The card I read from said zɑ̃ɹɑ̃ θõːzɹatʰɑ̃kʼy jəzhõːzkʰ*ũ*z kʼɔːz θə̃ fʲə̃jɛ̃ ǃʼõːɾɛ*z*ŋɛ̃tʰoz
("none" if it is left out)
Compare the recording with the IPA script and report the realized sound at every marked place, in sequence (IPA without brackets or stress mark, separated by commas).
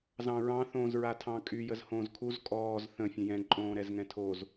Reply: u, z